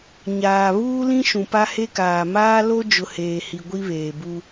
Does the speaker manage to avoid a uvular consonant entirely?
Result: yes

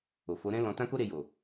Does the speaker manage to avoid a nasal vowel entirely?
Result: no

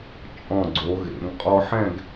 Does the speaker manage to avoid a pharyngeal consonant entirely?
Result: no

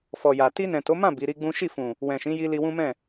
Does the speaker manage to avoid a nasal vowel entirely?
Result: no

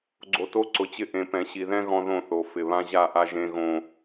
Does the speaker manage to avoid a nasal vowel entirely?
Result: no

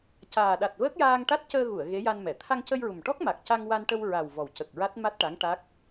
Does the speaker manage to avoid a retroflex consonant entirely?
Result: no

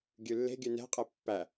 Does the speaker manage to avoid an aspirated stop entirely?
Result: yes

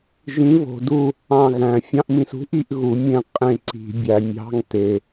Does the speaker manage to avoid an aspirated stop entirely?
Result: yes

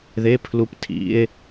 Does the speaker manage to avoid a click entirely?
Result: yes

